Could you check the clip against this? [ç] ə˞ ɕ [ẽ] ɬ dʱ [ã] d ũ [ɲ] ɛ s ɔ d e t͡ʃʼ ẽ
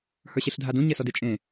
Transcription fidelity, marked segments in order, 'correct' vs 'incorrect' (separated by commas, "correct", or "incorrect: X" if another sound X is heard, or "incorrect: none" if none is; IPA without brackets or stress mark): incorrect: h, incorrect: e, incorrect: a, correct